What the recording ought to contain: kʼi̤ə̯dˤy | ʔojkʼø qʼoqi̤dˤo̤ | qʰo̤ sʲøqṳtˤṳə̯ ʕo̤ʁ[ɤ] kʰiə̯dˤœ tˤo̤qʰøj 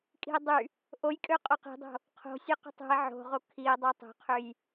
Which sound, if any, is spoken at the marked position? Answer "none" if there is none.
o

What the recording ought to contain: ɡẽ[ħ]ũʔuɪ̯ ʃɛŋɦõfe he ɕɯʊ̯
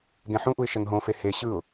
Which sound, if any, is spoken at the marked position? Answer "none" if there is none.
ħ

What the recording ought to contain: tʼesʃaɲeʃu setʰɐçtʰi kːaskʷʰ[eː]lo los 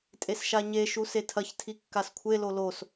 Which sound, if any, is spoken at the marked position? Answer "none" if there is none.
e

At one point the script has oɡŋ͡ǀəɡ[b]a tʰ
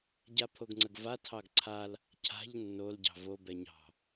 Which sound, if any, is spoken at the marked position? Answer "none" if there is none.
v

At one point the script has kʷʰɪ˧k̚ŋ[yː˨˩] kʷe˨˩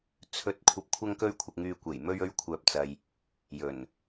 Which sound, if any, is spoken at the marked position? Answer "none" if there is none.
yː˧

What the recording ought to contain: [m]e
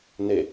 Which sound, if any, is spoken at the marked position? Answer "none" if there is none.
n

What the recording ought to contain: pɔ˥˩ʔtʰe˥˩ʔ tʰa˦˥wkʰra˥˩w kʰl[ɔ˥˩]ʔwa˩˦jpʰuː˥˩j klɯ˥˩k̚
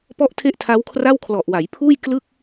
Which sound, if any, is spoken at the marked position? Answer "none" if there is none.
ɔ˨˩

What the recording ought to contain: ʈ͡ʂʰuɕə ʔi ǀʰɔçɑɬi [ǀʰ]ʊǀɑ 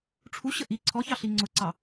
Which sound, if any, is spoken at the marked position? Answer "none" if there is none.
ŋ͡ǀ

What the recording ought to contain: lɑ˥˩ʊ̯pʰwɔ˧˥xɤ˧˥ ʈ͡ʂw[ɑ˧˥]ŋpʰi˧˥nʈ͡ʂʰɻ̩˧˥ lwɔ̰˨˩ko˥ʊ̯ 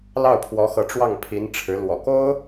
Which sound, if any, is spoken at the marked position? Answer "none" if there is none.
ɑ˥˩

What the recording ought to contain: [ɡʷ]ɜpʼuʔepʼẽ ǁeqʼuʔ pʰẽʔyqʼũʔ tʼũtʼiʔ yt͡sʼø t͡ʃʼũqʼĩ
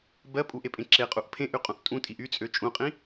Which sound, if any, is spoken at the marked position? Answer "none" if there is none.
b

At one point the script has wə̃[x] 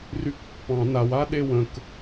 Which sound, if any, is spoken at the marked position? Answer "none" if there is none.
k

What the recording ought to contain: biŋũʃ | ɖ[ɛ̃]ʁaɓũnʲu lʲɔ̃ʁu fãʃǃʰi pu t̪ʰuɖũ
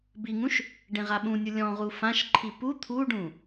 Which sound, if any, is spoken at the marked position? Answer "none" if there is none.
ẽ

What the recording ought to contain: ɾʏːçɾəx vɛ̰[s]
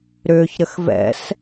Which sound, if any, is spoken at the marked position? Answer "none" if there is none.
s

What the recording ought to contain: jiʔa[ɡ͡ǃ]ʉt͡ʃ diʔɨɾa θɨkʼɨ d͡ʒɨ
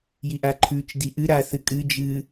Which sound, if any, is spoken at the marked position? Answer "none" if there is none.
ǃʰ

